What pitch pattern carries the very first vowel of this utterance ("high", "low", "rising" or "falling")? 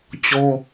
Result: high